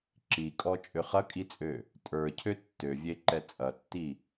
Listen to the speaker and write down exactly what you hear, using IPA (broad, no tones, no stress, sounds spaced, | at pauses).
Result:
ǁ i kʼ ɔ t͡ʃʼ ø χ ɐ kʼ i t͡sʼ ø | tʼ ə˞ cʰ ø tː ø vʲ e ǃ ɛ t͡sʼ ɐ tː i